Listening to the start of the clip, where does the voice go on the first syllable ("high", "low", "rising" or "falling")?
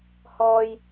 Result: low